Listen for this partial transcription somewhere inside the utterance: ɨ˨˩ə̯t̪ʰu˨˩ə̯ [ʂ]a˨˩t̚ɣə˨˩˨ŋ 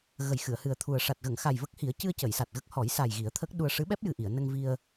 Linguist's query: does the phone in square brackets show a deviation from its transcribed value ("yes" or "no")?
no